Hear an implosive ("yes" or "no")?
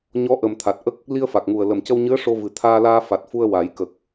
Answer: no